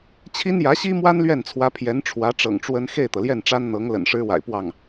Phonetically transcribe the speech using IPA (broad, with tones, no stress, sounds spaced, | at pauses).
t͡ɕʰ i˥ n j ä˧˥ ɕ i˥ m w a˥ n l ɥ ɛ˥˩ n t͡sʰ w ä˧˥ pʰ j ɛ˧˥ n ʈ͡ʂʰ w ä˧˥ ʈ͡ʂ ɤ̰˨˩ ŋ ʈ͡ʂ w ə˥ n x e˥˩ ɪ̯ t̪ ɤ˩ l j ɛ˥˩ n ʈ͡ʂ a˥ n n̪ ɤ˧˥ ŋ l ə̰˨˩ n ʂ ɻ̩˥ w a̰˨˩ ɪ̯ p w ɑ˥˩ ŋ